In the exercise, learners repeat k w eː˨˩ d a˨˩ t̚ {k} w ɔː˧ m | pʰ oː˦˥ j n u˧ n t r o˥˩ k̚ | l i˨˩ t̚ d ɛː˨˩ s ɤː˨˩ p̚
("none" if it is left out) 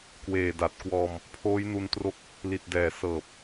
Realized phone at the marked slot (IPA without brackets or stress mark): k